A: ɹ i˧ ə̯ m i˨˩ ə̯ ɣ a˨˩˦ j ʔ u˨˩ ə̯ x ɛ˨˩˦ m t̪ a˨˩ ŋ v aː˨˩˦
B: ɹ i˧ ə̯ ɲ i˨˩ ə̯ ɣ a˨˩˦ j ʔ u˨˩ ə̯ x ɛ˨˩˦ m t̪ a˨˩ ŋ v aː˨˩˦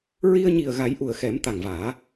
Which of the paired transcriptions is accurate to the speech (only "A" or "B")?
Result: B